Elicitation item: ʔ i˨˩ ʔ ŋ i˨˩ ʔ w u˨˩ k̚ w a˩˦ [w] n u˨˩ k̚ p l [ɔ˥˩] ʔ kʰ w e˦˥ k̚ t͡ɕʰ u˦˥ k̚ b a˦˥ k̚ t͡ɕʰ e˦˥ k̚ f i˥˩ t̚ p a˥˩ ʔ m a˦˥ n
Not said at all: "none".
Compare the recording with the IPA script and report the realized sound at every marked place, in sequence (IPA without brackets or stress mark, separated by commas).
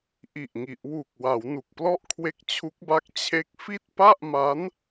w, ɔ˥˩